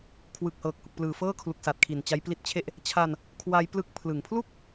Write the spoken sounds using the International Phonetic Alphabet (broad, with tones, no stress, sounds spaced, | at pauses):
kʰ w ɯ˨˩ k̚ h ɤː˨˩ k̚ h u˨˩ k̚ p l ɯː˨˩ f ɤː˥˩ kʰ l u˨˩ k̚ s a˨˩ t̚ kʰ i˨˩ n t͡ɕ a˦˥ j p l i˦˥ t̚ t͡ɕʰ e˥˩ ʔ | t͡ɕʰ a˧ n | kʰ w a˦˥ j p l ɯ˦˥ k̚ pʰ l ɯ˩˦ ŋ pʰ l u˥˩ k̚